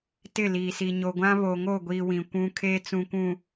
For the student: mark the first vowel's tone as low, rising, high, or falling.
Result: falling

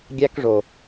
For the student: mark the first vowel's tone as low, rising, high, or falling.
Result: high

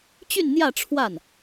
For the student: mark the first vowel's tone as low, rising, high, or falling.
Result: falling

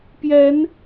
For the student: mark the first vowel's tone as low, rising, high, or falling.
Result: rising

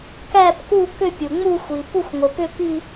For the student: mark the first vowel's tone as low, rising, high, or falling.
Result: falling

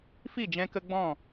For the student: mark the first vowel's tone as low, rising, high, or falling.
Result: falling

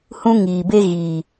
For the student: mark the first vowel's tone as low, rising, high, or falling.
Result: high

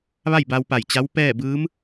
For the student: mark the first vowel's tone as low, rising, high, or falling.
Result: falling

